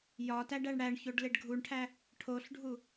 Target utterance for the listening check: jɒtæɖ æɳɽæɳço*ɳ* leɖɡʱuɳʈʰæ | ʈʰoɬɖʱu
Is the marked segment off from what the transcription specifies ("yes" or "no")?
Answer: yes